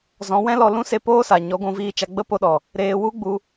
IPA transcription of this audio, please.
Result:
z ɔ̃˨˦ w ɛ̃˦ l ɔ˧ l ũ˦ s e˧ p oː˦ s a˨ ɲ ɔ˨˦ ɡʷ ũ˧ v iː˧ t͡ʃ a˧ ɡ͡b ə˦ p o˧ ɗ ɔ˨ | ɾ eː˧ w u˦ ɡ͡b u˧

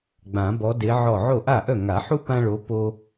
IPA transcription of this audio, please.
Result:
ɡ͡b ã˨˩˦ b ɔ˨˦ d e˨˦ ʕ ɔ˧˩ ʕ o˥˩ ʔ a˥˩ ʔ œ˥˩ ŋ a˨˩˦ ħ u˦ p ã˦ ɭ o˨˦ p o˦

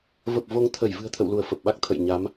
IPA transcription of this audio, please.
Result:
v ə˨˩ p̚ v o˧ ŋ t̪ʰ ə˧˩ j v ɨ̤˨˩ ə̯ t̪ʰ ə̰˧˨ w l u˧˩ ə̯ f ə˨˩ p̚ ɓ a˦˥ k̚ t̪ʰ ə̰˧˨ j ɲ a˨˦ m

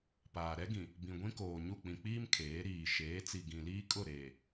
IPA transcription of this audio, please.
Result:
p aː˨ ɾ ɛ˦ ɡ ĩ˨ | b ĩ˨ ɡʷ ĩ˦ k oː˨ ɲ u˦˨ k͡p ĩ˨ k͡p iː˦ m kʰ eː˨˦ ɾ iː˨ ʃ eː˨˦ t͡s i˨ ɡ ĩ˨ l iː˦ kʼ ʊ˦˨ ɾ eː˨

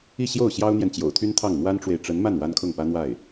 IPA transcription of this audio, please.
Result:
i˥˧ ɕ j o˥˩ ʊ̯ ɕ j ɑ˥ ʊ̯ n̪ j ɛ˨ n t͡ɕ j o̰˨˩ ʊ̯ t̪ʰ y˥ n t̪ʰ ɑ˥˩ ŋ n̪ w a˥ n ʈ͡ʂ w e˨ ɪ̯ ʈ͡ʂ ə˧˥ n m a˥˩ n w a˥ n kʰ ʊ˥˩ ŋ p ä˥ n̪ w a˥˩ ɪ̯

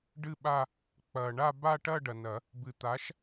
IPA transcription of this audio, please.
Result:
ɖ ɨ˥˧ ɓ a˥˧ | k͡p ɐ˨ ɳ a˥˧ b a˥˧ ʈ ɐ˥˧ ɖ ɐ˨ n ɐ˨˩˦ | b ɨ˨ t̪ a˨˥ ʃ

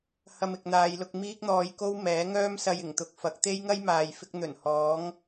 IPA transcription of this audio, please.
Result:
h ɐ˧ m ɪ˨ k̚ n̪ aː˨˧ j l ʊ˧ k̚ m iː˥ k̚ n̪ ɔː˧ j k o˥ w m ɛː˨˥ ŋ œː˥ m s ɐ˧ j ɪ˨˩ ŋ t̪ ʊ˧ k̚ f ɐ˨˥ k̚ t̪ e˥ j ŋ ɐ˥ j m aː˨ j f ɪ˧ k̚ n̪ ɵ˨˩ n h ɔː˨˥ ŋ

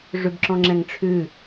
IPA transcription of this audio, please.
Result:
ʐ ʉ b ǁ ɔ̃ ŋ͡ǁ ɛ̃ ŋ ʈ͡ʂʰ ʉ

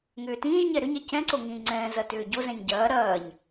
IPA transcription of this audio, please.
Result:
ŋ ʏː t ĩː ʒ ɲ ɛ ɾ ʏ ɲ ɛ c ɛ̃ ǀ o ŋ ĩː ŋ͡ǀ ɛ̃ː z ɐ t ʏː ɟ o z ɛ̃ ɲ ɟ ɐː ɾ ɐː ɲ

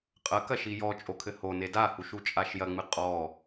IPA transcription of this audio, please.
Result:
qʼ ɐ k ɐ ʃ i j ɔ t͡ʃʼ o kʰ ɘ h o n e d a h u ʃ u t͡ʃʼ a ʃ j ɐ ŋ͡m ɨ qʼ ɔ

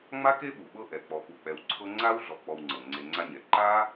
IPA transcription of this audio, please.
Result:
ŋ͡m a˥ k e˥ ɓ u˩ ɓ ɤ˦ ʔ ɛ˩ k͡p ɔ˨ p u˨ k͡p ɛ˨ w ǀʰ ɤ˦ ŋ͡ǀ a˥ w ɮ ɔ˨ k͡p ɔ˨ w ŋ͡ǀ ɤ˩ ŋ͡ǀ e˨ ŋ͡ǀ a˦ ɲ ɛ˩ ǃ a˥

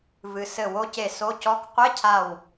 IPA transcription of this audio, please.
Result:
v ɨ˩ s ɘ˧˩ w o˦˥ c e˧˩ s o˧˥˧ c ɔ˧˥˧ k qʷ e˧˥˧ cʰ a˧˩ w

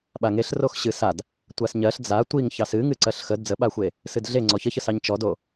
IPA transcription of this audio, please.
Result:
ɓ a ŋ e ɬ r o x ɕ ɨ s a d | tʷ a s ɲ ɜ ɬ d͡z a tʷ i ŋ ç ɑ s ɨ ŋ ɨ ǀ ɜ ɬ x ə d d͡z ə ɓ a xʷ e | s ɨ d ɮ e ŋ͡ǀ ɔ ç ə ç ə s ɑ ɲ t͡ʃ ɔ d o

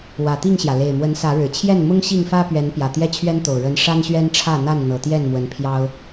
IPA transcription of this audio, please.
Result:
w ä˨˩ t̪ i˥˨ ŋ ɕ j ä˩ l e˨˩ ɪ̯ m w ə˨˦ n s ä˨˦ ɻ ɻ̩˨˩ t͡ɕʰ j ɛ˥˨ n m ʊ˦ ŋ ɕ i˥˨ ŋ f ä˦ p ɥ ɛ˨˦ n p j ä˨˩ t̪ j ɛ˦ t͡ɕʰ ɥ ɛ˦ n t̪ o˨˩ ʊ̯ ɻ ə˨˦ n ʂ a˦ n ɕ ɥ ɛ˦ n ʈ͡ʂʰ ä˥˨ n̪ a˥˨ n n̪ ɤ˨˩ t̪ j ɛ˥˨ n m w ə˨˦ n pʰ j ɑ˦ ʊ̯

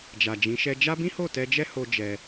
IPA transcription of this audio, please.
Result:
d͡ʒ a˨ d͡ʒ ĩ˨˦ ʃ ɛ˦ d͡ʒ a˦ b ĩ˦ h o˦˨ t ɛ˧ d͡ʒ ɛ˦ h o˦ d͡ʒ ɛ˧

